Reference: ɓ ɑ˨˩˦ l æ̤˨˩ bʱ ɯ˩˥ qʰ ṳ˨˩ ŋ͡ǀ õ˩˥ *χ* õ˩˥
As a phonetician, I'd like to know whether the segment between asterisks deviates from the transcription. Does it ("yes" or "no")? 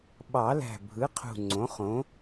no